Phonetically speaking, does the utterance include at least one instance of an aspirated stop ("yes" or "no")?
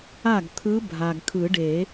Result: yes